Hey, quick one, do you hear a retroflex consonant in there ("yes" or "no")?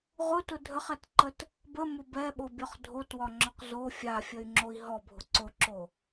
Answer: no